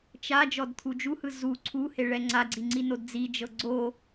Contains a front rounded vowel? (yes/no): no